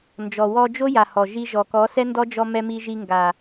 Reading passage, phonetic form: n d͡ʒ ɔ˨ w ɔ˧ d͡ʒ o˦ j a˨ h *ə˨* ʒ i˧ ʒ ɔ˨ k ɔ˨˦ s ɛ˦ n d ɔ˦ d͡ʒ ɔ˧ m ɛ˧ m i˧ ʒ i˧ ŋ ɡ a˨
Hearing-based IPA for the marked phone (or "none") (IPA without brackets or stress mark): ɔ˨